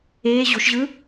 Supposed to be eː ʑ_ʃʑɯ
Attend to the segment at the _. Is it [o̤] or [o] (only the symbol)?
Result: o̤